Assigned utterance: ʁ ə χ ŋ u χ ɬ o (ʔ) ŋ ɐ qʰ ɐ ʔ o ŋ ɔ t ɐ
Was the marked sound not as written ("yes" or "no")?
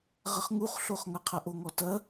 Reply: yes